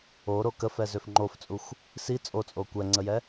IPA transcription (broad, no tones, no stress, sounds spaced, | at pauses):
o ɾ o k ə f ɛ z ø f ŋ͡ǃ o f t͡sʼ u xʷ | s i t͡sʼ o t͡sʼ o kʷ ɛ ŋ͡ǀ ə j ɛ